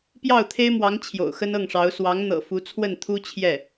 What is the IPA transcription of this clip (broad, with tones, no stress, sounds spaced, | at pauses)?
p j ɑ˥˩ ʊ̯ t̪ʰ e˥ ɪ̯ m w ɑ˧˥ ŋ t͡ɕʰ j o̰˨˩ ʊ̯ x ə˥ n ɤ˥˩ ŋ ʂ ɑ˧˥ ʊ̯ s w ɑ˧˥ ŋ n̪ ɤ̰˨˩ f u˧˥ t͡sʰ w ə˥˩ n t̪ʰ u˥ t͡ɕʰ j ɛ˥˩